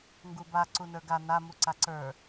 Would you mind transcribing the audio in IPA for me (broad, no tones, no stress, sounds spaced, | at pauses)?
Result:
ŋ ɡ u b a ǀ u n ə˞ ɡ a n a m u ǀ a ǀ ə˞